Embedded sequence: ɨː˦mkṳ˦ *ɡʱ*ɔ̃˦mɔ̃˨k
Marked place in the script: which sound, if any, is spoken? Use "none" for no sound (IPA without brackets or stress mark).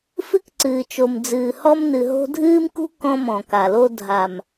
k